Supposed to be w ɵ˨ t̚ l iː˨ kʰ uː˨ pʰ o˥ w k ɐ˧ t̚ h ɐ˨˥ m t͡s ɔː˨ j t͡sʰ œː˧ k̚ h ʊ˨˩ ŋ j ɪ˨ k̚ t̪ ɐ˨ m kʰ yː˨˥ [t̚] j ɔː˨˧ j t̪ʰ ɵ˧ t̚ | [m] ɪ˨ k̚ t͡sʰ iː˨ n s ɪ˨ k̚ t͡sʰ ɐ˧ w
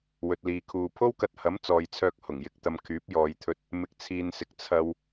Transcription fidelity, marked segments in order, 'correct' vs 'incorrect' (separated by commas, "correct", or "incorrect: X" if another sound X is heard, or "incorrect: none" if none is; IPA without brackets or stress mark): incorrect: p̚, correct